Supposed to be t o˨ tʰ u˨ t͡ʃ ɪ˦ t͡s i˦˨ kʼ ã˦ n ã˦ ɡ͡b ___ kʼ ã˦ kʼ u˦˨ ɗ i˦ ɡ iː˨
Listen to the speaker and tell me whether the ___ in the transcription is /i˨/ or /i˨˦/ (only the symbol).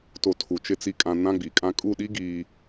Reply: i˨